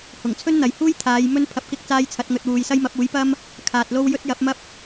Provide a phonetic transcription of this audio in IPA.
h ʊ˨˩ ŋ t͡sʰ ɵ˥ n n̪ ɐ˨ j h uː˥ j t̪ʰ aː˨˧ j m ɵ˥ n pʰ ɐ˧ p̚ k ɪ˥ k̚ t͡s aː˥ j t͡sʰ ɐ˨˥ t̚ ŋ ɵ˧ t̚ w uː˨ j s ɐ˥ j m ɐ˨˥ p̚ uː˨˥ j p ɐ˥ m | kʰ aː˨ t̚ l o˧ w j ɵ˥ t̚ j ɐ˨˥ p̚ m ɐ˥ p̚

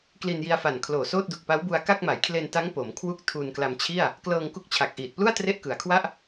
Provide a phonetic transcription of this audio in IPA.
k l i˧ n j i˧ a̯ f a˨˩ n kʰ l oː˨˩ s oː˥˩ t̚ d u˨˩ k̚ p a˦˥ w b u˧ a̯ k a˥˩ k̚ m a˩˦ j kʰ l e˧ n t a˦˥ ŋ p o˩˦ m kʰ w u˥˩ k̚ tʰ uː˧ n k l a˧ m t͡ɕʰ i˥˩ a̯ | k l ɤː˧ ŋ k u˦˥ k̚ t͡ɕʰ a˨˩ k̚ ʔ iː˨˩ t̚ p l u˥˩ a̯ t r e˥˩ ʔ k ɯ˩˦ a̯ kʰ w a˥˩ ʔ

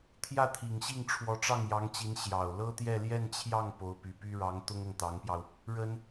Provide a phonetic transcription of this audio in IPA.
t̪ʰ j ä˥˩ t̪ʰ i˨˩ ŋ ɕ i˥˩ ŋ ʈ͡ʂʰ w ɔ˧˥ ʈ͡ʂ ɑ˥˩ ŋ j ɑ˧˥ ŋ t͡ɕ i˧˥ n ɕ j ɑ˨˩ ʊ̯ l ɤ˥ t̪ j ɛ˥˧ l j ɛ˥˧ n t͡ɕʰ j ɑ˥˩ ŋ p o˧˥ ʊ̯ p y˨˩ p y˥ ɻ ɑ˧˥ ŋ t̪ ʊ˥ ŋ ʊ˨ ŋ t̪ ɑ˧˥ ŋ p j ɑ˧ ʊ̯ | ɻ ə˥ n

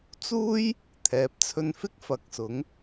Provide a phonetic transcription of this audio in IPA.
t͡s uː˥ j | t̪ʰ ɛː˨˥ p̚ t͡sʰ ɵ˧ n f ɪ˥ k̚ f ɐ˨ k̚ s ʊ˨˥ ŋ

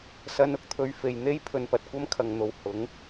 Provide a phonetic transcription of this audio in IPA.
s ɐ˧ n ʊ˧ k̚ t̪ʰ ɵ˧ ɥ f e˨ j n̪ e˥ j pʰ ɵ˧ n p ɐ˨ t̚ kʷ ɐ˥ m kʰ ɐ˨ ŋ n̪ o˨ w h ʊ˨˥ ŋ

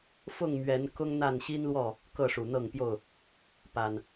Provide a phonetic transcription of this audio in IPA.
f ʊ˥˨ ŋ m ɥ ɛ˨˦ n k ʊ˦ ŋ n̪ a˥˨ n ɕ i˦ n l w ɔ˥˨ | k ɤ˥˨ ʂ u˨˩ n̪ ɤ˥˨ ŋ p j o˥˨ ʊ̯ | p a˨˩ n

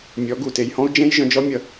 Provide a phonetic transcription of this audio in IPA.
mʲ ɔ˨˦ ɡ u˨ t e˨ j h ɔ̃˦ u̯ d͡ʒ ẽ˦ j ʒ œ̃˧ d͡ʒ ɔ˦ mʲ ʌ˨

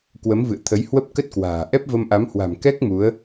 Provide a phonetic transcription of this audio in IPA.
k w ə˨˦ m v ɨ̰˧˨ ə̯ t̪ʰ ə˨˦ j h w ə˦˥ p̚ k ə˦˥ t̚ k w a̤ː˨˩ ʔ ɛ˦˥ p̚ v ə˧ m ʔ a˨˦ m h w a̤˨˩ m k ɛ˦˥ k̚ m u˨˦ ə̯

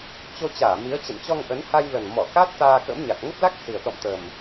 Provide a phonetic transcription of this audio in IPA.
t͡ɕ o˧ t͡ɕ aː˧˩ m i˨˦ ə̯ t͡ɕ ə̰˧˨ n t͡ɕ ɔ˧ ŋ ʔ ə˨˦ n h a˧ j l ə˨˩ n m ɔ˧˩ k a˦˥ t̚ t̪ aː˧ k ə̰˧˥ m ɲ a˨˩ k̚ ŋ ə˦˥ p̚ l a˦˥ k̚ s i˨˩ ə̯ t̪ ɔ̰˧˨ m t̪ ə˨˩ m

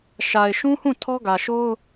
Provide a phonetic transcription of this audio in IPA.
ʃ a˨ ɪ̯ ʃ ũ˦ h ũ˦˨ tʰ ɔ˦ ɡ ä˨ ʃ o˦ ʊ̯

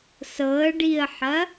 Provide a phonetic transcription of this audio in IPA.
s ɤ ə̯ ɖ i ə̯ ħ ɐ

